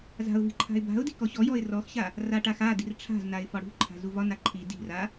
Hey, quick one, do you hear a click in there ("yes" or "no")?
yes